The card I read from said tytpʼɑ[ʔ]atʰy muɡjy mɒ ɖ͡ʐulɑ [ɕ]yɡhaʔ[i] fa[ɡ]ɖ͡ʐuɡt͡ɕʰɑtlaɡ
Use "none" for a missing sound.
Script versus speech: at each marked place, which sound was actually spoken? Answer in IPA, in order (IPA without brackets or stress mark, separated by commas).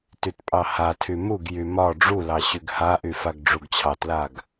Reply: h, ɕ, y, ɡ